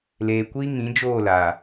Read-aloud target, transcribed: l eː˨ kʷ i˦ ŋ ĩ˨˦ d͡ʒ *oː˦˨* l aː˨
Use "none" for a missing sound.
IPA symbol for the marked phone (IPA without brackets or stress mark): oː˦˨